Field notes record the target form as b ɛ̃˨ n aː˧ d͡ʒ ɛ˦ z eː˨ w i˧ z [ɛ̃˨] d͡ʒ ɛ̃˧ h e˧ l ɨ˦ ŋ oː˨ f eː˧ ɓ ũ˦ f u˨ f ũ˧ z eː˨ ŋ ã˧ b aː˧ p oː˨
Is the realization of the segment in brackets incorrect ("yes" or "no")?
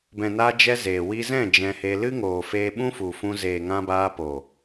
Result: yes